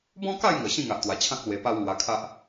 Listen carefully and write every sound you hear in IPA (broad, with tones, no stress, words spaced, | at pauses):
bɔ̃˦ka˥˧jŋə˨˩ ɕĩ˥˧ŋa˨ʔt̪wa˨˩t͡ɕʰã˦k̚ lwe˧pa˦wŋwa˧kʰa˦ʔ